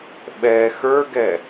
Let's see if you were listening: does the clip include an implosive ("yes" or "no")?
yes